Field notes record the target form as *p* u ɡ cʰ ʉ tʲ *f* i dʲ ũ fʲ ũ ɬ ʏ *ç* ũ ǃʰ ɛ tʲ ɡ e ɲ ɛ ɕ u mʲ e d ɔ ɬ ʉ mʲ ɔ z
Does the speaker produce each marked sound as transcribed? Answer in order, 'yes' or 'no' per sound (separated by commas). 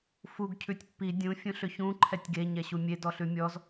no, no, yes